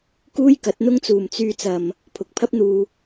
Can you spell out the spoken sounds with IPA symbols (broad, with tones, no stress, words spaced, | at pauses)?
kuː˥jkɐ˨˥t̚n̪ʊ˥ŋt͡suː˨m t͡syː˧t͡sɐ˨m | pʰʊ˨˥k̚pʰɐ˥p̚n̪uː˧